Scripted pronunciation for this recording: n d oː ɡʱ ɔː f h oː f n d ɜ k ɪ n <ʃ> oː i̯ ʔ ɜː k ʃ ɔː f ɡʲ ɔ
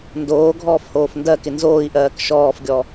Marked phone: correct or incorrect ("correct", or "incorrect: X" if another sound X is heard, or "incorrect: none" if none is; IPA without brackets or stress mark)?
incorrect: z